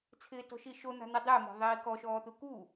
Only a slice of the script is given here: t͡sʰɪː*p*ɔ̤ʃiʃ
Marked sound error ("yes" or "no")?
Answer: yes